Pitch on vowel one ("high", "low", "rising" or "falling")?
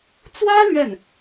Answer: high